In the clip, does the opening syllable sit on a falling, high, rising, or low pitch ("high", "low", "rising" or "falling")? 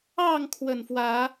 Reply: falling